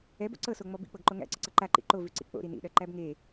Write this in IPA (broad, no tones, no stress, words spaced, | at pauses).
ɛbo̰ ǀɤsoŋ͡mɔ bḭk͡pɤɡǃo ŋæ̰ǀɤǀɤ ǃaǃḭ ǃovʉǀḭ k͡po̰ɾi nḭɗɜǃæb ŋe